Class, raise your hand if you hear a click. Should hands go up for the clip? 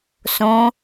no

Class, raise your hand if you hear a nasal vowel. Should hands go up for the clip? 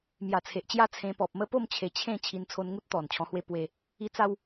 yes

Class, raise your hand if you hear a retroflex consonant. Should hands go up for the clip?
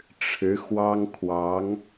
yes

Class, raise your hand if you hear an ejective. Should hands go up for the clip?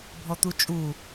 yes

